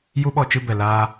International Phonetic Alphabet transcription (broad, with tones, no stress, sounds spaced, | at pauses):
j u˦ ɓ ɔ˧ t͡ʃ ɨ˧ b ɛ˨ l aː˧